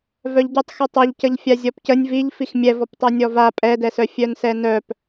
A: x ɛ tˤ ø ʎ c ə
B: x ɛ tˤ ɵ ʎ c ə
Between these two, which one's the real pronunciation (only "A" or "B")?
B